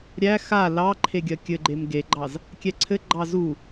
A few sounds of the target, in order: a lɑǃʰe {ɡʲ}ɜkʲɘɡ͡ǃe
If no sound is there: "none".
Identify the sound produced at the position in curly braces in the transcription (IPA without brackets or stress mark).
ɡʲ